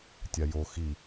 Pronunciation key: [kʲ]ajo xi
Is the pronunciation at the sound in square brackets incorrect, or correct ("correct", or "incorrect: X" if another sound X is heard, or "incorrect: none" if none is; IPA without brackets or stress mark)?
incorrect: tʲ